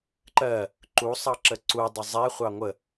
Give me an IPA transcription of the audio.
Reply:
ǃɜ | ǃusˤɑ ǁəǀudˤʊ zˤɛχʷɑ ŋʷə

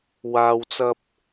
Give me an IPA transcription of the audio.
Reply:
waː˨wt͡sɐ˧p̚

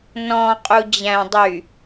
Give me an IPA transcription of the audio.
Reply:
nɔ̃ qʼud͡ʑæ̃ dˤy

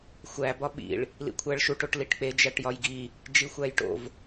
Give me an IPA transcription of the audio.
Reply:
xʷæ bɒɓḭɭ | lḭkʷʰæɭʃuʈ oʈliʈk͡pe d͡ʒæʈjɒjɡi | d͡ʒixʷæjʈo̰v

